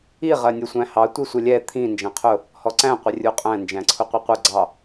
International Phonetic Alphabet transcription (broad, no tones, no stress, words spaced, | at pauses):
i ʁɜnʲʊsʷæ̃hɑ tʷisʷəlʲɛ t̪ʰĩ nd͡ʒæ̃qʰʊ | hɔǀæ̃ qʷɪrʲuqʼæ̃ nd͡ʒæ̃ǀʰʊqʷʌqʷə ɡ͡ǀɑ